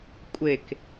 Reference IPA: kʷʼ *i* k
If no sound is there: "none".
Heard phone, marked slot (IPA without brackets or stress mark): e